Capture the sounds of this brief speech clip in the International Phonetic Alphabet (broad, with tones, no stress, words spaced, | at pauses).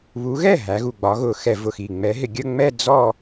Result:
βu˨˦ɣɛ˥˩ ɦæ˨˦ɣu˨˩ɡ͡bɒ˨˦ ɣʊ˨˩xɛ˧˩˧vʊ˨˩xi˨˩ ŋ͡mɛ˨˦ɦɪ˧˩˧ ɡʲə˥˧ŋ͡mɛ˥˧ d͡zɔ˥˧